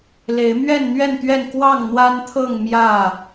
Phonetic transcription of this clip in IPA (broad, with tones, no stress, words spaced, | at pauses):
le˨˦ɪ̯mɥɛ˥˨nn̪ɥɛ˥˨nt̪ɥɛ˥˨n kwɑ˥˨ŋn̪wa˦nt̪ʰɤ˥˨ŋ mjä˥˨